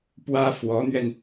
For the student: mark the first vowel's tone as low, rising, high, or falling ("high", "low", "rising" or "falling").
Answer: high